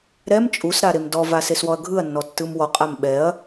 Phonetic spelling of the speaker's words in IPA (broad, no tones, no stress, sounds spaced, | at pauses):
ɾ ɛ m t͡ʃʼ u s ɾ a ɾ e m d ɔ v a s e s w ɔ ɐ̯ ɡʱ ɯ ɐ̯ nː ɔ tː ɯ m w ɔ qʼ a m ɓ ɛ ɐ̯